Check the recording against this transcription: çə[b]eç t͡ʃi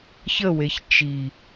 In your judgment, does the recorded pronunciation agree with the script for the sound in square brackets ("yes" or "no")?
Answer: no